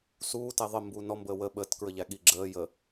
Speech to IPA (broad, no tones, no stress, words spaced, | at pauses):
suː tɛðˤə mbuːnɔ mbəːwə ɓəːtkɹəʎæ ɠiɡ͡ǁəː jə